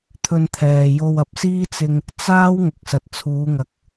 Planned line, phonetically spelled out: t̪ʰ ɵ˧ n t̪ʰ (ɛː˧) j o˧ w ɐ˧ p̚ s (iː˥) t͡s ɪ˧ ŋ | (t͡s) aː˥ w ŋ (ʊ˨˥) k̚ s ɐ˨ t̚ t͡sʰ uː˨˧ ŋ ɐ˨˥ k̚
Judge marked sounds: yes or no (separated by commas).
no, yes, yes, no